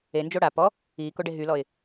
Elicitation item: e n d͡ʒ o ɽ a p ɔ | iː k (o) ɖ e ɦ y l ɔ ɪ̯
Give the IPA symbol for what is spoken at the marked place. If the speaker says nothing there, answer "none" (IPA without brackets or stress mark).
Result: o